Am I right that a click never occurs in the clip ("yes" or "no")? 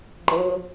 no